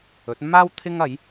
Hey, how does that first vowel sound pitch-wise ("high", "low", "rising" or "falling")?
rising